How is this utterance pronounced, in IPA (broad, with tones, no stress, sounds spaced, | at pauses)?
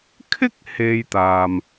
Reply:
kʰ ɪ˥ k̚ h e˧ j t̪ aː˨ m